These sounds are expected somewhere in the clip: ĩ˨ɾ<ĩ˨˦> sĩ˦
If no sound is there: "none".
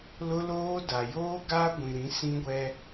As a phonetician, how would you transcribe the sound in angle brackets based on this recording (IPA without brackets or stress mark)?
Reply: ĩ˨˦